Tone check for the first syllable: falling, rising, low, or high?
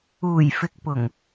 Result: low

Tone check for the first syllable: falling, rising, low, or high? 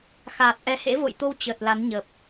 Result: low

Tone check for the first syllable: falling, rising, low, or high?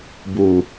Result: low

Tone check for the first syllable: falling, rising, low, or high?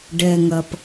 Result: low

